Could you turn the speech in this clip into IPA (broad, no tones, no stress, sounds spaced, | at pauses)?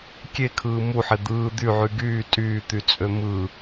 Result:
kʲ e kʰ ɯː m u ħ e d̪ ɯː d̪ y ʕ y ɡ yː tʼ yː t̪ y t͡sʼ ø m ɯ